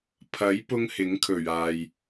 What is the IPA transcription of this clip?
pʰ ɐ˨˥ j p ʊ˥ ŋ h ɪ˨˥ ŋ kʰ ɵ˨˩ ɥ aː˨ j

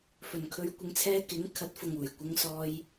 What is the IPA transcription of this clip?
f ɵ˨˩ n kʰ ɵ˨˧ ɥ kʷ ɪ˨˧ ŋ t͡sʰ ɛː˧ k ɪ˨˥ ŋ kʰ ɐ˨˥ t̚ f ʊ˨ ŋ uː˨˩ j kʷ ɪ˧ ŋ s ɔː˧ j

